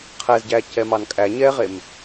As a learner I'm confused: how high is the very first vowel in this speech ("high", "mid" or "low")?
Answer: mid